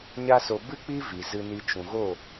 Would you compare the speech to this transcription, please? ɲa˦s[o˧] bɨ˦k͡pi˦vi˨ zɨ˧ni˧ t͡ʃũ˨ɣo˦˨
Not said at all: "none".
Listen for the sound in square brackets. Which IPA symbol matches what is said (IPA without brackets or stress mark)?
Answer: o˧